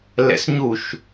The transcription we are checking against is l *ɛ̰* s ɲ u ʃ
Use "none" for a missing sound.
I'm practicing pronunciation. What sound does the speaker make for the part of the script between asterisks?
ɛ̰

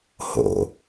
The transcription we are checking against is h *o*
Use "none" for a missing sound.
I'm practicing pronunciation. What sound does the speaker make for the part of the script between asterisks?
o̰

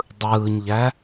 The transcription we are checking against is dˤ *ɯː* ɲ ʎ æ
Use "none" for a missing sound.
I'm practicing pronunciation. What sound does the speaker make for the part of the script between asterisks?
ɯː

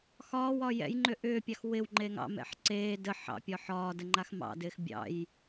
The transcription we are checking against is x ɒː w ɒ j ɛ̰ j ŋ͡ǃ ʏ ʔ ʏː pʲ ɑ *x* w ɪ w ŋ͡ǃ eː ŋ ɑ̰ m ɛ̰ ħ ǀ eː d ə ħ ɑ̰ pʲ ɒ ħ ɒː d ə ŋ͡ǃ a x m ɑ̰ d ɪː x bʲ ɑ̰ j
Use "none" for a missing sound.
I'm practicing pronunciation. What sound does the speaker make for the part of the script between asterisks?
x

